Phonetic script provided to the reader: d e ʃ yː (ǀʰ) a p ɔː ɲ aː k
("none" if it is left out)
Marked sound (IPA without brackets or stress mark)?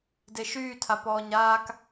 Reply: tʰ